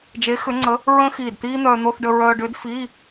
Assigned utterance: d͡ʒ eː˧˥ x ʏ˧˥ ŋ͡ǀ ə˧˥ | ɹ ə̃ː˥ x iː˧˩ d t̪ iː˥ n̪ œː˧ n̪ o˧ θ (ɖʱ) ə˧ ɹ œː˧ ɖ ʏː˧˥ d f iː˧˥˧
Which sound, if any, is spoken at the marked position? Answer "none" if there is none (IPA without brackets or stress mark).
ɖ